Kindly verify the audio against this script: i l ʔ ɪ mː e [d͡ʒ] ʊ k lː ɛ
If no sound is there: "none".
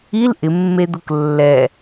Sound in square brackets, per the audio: d̪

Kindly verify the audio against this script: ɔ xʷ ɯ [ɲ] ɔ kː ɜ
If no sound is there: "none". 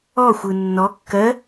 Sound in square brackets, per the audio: nː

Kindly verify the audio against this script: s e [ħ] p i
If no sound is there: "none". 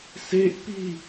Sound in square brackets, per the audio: ʔ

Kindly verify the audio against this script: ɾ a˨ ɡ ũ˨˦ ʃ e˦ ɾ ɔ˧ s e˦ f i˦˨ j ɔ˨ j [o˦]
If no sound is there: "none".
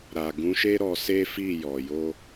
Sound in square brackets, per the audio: o˧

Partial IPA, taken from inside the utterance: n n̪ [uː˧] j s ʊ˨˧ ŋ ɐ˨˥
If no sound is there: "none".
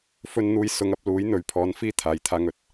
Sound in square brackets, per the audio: uː˧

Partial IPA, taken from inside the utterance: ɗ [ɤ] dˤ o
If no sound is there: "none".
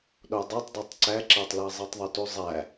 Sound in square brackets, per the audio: o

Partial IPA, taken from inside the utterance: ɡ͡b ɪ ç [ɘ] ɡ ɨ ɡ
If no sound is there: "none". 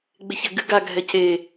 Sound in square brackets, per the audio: ɘ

